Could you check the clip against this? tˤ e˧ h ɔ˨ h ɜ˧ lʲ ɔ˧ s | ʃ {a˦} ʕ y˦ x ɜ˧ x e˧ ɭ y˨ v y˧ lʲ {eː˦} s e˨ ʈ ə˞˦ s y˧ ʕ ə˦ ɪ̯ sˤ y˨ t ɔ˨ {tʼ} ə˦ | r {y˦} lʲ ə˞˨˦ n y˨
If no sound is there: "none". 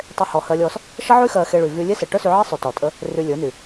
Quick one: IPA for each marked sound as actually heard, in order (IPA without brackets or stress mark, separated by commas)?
ə˦, e˦, tʼ, y˧